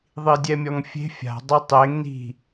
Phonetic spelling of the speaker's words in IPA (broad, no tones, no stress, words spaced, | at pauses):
ðˤidʲɛmʲɔŋfʲe̤ fʲa̤ dˤetˤeŋ ni̤